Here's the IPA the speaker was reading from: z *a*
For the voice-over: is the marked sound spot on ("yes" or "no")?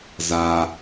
yes